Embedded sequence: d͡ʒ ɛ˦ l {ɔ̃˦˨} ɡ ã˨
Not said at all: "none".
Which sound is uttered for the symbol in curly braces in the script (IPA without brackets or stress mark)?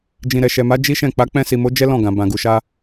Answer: ɔ̃˦˨